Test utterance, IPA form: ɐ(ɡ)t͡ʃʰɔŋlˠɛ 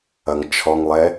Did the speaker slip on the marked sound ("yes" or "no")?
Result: yes